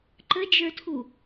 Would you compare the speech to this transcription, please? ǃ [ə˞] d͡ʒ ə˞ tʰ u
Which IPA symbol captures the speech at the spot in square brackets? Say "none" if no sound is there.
ə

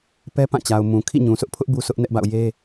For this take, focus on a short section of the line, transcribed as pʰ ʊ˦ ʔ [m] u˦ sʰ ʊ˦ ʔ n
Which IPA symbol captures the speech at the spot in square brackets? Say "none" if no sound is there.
b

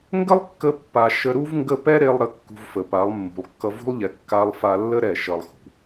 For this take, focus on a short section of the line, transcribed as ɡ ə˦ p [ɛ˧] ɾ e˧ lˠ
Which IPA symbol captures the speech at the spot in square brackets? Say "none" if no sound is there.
ɛ˦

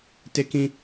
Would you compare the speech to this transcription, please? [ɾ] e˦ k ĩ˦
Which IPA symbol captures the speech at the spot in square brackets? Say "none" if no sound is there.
t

